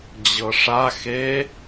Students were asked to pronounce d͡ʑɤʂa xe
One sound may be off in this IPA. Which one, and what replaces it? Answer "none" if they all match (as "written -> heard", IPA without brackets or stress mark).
none